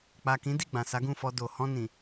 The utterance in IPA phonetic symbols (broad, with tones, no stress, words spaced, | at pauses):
k͡pa˨kĩ˨˦di˦˨ ɡ͡bã˨sa˨˦ɡũ˦˨fɔ˧ do˨ hɔ̃˧nĩ˨